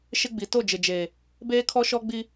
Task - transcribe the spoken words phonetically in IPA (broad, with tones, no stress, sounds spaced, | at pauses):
ʃ ɪ˦ ɡ͡b i˨ t o˦˨ d͡ʒ ɪ˨ d͡ʒ eː˨ | b eː˦ kʰ ɔ˦ ʃ ɔ˦ ɡ͡b i˦